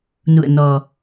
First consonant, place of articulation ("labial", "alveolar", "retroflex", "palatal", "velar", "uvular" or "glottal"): alveolar